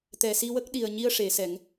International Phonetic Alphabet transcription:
t̪ ɛ˨˩ s i˧ w ə˦˥ k̚ ɗ i˨˩ ə̯ ɲ i˧ ə̯ ʂ e˨˩˦ s ɛ˨˩˦ ŋ

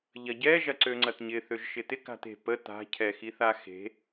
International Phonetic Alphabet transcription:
ʎ ɐ ɟ ɛ ʒ ɐ ǀ ø ŋ͡ǀ ɐ t ɲ ɪ θ ø ʒ ʃ ɪ t ɪ k a̤ t e̤ p ə t a̤ cʰ ɛ x i θ a x e̤

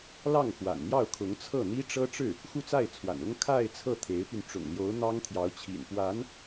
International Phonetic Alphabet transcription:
l ɑ˥˩ ŋ x w a̰˨˩ n n̪ j ɑ˥˩ ʊ̯ kʰ ʊ˧˥ ŋ t͡sʰ ɤ˥˩ n̪ i˥ ʈ͡ʂ ɤ˥ ʈ͡ʂ ɻ̩˥˩ | x u˥˧ t͡s a˥˩ ɪ̯ t͡sʰ w a̰˨˩ n ʊ˥ ŋ kʰ a˥˧ ɪ̯ t͡sʰ ɤ˥˩ t̪ʰ e˧˥ ɪ̯ p y˧ n ʈ͡ʂ ʊ̰˨˩ ŋ l j o˧˥ ʊ̯ n̪ ɑ˥ ŋ t̪ʰ j ɑ˧˥ ʊ̯ t͡ɕʰ ḭ˨˩ n p w a˧˥ n

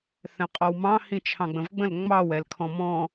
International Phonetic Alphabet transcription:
θ ɛ̃ qʼ ɔ w m ɑ̃ h ĩ t͡ʃʰ ɑ̃ ɡ͡b ə̃ v ɡ͡b ə̃ l ŋ͡m ɑ w ɛ l kʰ ɔ̃ m ɔ̃

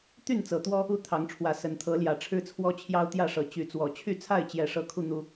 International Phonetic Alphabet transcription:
t̪ y˥˨ n t͡s ɤ˨˩ t̪ w ɔ˦ | u˥˨ t̪ʰ ɑ˨˦ ŋ ʈ͡ʂʰ w ä˨˦ s ə˨˦ n t̪ʰ ɤ˨˦ l j ä˨˩ ʈ͡ʂʰ ɻ̩˦ t͡sʰ w ɔ˦ t͡ɕʰ j ɑ˦ ʊ̯ t̪ j ä˥˨ ʂ ɤ˨˩ t͡ɕ y˨˦ t͡s w ɔ˨˩ t͡ɕʰ y˥˨ t͡sʰ a˥˨ ɪ̯ t͡ɕ j ɛ˨˩ ʂ ɤ˨˦ kʰ u˧ n̪ u˦

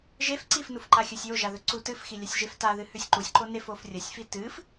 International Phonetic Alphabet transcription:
ʒ e f ǀ i f n u f ǃ a xʲ ɵ sʲ j o ʒ a ð ɵ ǀ u t ɨ f x i lʲ a sʲ ʒ e f t a ð ɨ h ʉ sʲ ǃ u sʲ ǃ o n e f o f rʲ ɐ sʲ f i t ɨ f

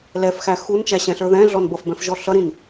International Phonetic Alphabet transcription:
l ɛ f x æ x u n t͡ʃ æ ɕ ɛ̃ ɬ ə˞ ð ɛ̃ ɮ ɔ n b ʌ f b ɛ̃ f ʒ ɔ ɬ ʌ ɾ ĩ n

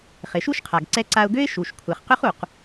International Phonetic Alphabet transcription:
χ ɪ˩ ʃ u˥ ʃ qʰ a˩ ɡ ǀ ɛ˧ ǀ a˧ ʊ̯ ɡ ø˥ ɪ̯ ʃ u˩ ʃ kʷʰ ɛ˩ χ q ʏ˥ χ u˩ q

